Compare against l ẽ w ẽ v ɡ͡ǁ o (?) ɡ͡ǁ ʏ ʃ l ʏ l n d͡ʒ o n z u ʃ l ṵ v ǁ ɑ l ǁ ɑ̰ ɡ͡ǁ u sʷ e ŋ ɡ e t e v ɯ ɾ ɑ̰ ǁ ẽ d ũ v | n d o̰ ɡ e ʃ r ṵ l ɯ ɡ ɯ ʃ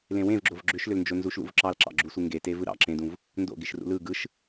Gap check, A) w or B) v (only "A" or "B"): B